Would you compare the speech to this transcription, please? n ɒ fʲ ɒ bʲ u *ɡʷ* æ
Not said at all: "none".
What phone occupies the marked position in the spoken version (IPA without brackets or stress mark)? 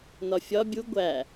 ɡʷ